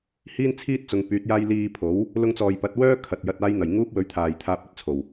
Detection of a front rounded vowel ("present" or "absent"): present